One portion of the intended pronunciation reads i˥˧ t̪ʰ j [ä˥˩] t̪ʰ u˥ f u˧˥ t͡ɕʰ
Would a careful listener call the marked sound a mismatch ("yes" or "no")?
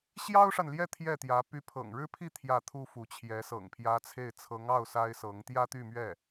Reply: no